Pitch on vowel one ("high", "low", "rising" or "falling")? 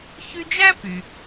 high